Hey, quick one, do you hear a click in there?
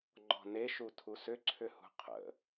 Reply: yes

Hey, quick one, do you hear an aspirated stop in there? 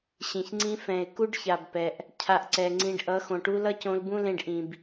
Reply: yes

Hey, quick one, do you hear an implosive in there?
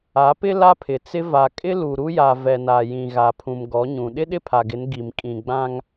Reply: yes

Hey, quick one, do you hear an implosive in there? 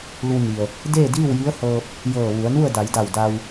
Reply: no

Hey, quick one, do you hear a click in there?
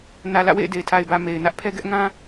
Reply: no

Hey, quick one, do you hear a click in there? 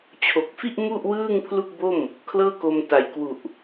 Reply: no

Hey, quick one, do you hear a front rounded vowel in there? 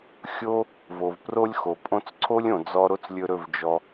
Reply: no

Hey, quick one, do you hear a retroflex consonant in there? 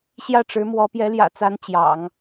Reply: yes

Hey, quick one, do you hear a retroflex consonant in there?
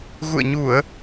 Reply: no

